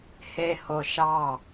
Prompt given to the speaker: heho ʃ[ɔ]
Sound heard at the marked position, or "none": ɑ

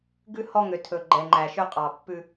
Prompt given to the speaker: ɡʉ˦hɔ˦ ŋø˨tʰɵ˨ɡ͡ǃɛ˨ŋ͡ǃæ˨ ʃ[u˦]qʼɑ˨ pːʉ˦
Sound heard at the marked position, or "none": ø˦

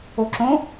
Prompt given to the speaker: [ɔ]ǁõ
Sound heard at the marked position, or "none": o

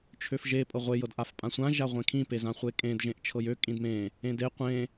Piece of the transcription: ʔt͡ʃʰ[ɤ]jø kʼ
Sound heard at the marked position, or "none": ɤ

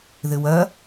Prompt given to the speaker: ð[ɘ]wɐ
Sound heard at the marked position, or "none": ɘ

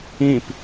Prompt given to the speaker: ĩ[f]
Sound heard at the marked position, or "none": p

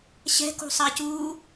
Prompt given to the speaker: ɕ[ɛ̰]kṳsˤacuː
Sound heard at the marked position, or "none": ɛ̤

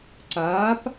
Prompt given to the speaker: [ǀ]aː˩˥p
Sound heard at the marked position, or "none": ǀ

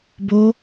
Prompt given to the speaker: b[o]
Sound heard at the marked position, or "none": o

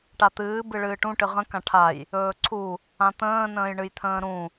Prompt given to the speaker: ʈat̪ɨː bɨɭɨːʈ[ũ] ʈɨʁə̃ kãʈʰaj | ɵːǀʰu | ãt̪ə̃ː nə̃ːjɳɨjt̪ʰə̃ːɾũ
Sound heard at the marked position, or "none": ũ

